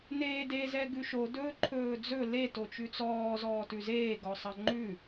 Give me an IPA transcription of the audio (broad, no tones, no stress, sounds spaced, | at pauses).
n eː d e z ɛ ɡ ʉ ʃ o d ɵː ǃʰ ɵː d͡z ɵ l e t o t͡ʃ ʉ t͡s ɔː z ɔː t ʉ z eː ɡ ɔ sˤ ɑ ŋ͡ǃ ʉ